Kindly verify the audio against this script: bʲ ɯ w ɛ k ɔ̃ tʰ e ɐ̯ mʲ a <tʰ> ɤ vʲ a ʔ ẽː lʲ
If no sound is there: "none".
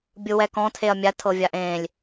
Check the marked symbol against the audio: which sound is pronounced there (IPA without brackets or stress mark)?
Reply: tʰ